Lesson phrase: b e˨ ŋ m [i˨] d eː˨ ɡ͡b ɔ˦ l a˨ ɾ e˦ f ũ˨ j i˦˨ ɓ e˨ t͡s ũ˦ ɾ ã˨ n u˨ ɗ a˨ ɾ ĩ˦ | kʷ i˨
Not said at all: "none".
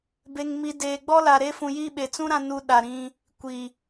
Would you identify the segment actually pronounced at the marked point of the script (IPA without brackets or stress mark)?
i˨